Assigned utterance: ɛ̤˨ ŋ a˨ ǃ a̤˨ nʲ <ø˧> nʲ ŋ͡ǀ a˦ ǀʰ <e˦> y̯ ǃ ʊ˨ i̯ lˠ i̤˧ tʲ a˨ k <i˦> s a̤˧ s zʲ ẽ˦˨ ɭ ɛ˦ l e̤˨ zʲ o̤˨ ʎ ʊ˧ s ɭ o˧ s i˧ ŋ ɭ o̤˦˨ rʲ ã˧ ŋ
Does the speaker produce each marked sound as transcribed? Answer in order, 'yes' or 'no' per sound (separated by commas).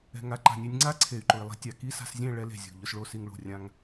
no, no, yes